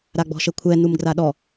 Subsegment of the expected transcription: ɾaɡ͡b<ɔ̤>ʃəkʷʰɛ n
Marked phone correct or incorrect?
correct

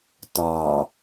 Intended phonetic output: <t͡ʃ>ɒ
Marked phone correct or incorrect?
incorrect: t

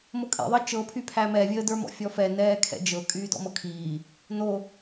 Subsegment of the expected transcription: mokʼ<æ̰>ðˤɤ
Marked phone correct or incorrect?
incorrect: ɛ̰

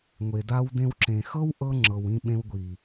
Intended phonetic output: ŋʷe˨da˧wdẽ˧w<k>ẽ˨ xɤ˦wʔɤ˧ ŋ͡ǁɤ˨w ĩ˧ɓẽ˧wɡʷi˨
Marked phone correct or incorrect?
incorrect: ǁ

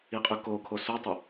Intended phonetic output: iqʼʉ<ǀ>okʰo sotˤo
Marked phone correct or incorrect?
incorrect: k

